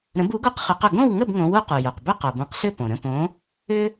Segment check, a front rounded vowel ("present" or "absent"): present